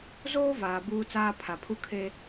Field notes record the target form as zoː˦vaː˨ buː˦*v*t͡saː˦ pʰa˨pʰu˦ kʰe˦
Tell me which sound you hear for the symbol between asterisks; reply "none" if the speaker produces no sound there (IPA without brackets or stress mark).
none